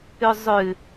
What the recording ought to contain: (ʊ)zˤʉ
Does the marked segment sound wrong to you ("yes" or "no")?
yes